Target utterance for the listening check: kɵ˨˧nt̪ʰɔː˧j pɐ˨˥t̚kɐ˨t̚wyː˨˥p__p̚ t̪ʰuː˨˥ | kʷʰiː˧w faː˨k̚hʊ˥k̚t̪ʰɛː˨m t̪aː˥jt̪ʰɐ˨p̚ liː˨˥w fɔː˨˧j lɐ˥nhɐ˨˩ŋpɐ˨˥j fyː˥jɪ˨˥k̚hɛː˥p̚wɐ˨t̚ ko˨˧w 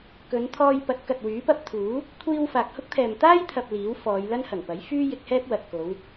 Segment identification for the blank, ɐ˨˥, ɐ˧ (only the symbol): ɐ˧